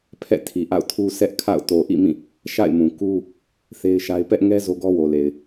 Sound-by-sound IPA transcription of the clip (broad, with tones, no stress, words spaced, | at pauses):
pʰɛ̰˦˨tʰi˨ʔa̰˦˨ʊ̯tʰu˦ sɛ˦ʔkʰa̰˦˨ʊ̯ to˨ʔḭ˦˨ mĩ˦˨ | ʃa̰˦˨ɪ̯mũ˨ku˦ | θe˦ɪ̯ʃa˦ɪ̯ pɛ˦ʔŋɛ˦ zo˦ɡɔ˦wo˨le˨ɪ̯